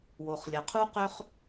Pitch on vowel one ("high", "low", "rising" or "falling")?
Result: low